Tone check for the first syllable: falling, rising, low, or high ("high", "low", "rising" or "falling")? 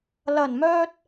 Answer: low